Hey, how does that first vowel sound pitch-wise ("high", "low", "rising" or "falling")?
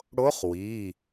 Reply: rising